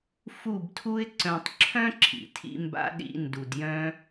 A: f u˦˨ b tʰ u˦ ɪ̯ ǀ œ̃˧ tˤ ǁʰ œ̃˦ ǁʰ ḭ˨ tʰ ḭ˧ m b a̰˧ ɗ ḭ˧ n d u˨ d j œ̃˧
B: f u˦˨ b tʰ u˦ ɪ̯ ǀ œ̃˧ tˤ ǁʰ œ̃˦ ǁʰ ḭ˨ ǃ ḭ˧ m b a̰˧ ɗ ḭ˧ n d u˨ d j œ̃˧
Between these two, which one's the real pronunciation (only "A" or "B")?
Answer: A